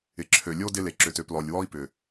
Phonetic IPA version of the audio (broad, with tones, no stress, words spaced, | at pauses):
ɪ˨ǁʰø˨ lʲo˦dɪ˧ le˨ǁʏ˨tø˨p lɔ˨lʲwɔ˦i̯pʏ˨